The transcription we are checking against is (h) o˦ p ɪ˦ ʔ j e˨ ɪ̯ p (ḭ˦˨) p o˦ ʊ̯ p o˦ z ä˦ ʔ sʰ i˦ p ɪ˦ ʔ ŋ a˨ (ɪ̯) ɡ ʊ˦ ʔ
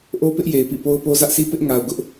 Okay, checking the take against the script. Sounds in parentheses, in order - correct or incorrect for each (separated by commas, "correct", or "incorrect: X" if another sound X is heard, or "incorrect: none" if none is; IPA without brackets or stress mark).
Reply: incorrect: ʔ, correct, incorrect: ʊ̯